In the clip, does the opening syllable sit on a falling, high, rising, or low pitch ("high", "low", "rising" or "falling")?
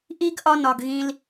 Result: high